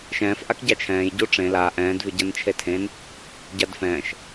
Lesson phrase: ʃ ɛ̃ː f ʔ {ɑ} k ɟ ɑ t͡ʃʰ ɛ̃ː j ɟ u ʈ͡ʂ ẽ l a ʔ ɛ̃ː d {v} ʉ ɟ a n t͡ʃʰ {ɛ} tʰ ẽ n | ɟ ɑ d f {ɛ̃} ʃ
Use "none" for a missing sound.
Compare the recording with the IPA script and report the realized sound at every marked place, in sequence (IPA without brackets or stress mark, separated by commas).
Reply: a, v, e, ɛ̃ː